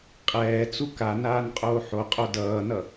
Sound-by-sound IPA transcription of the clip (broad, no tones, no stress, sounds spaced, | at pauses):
qʼ ɛː t͡s u k a n aː n qʼ oː ħ o qʼ o d ʌː n ʌ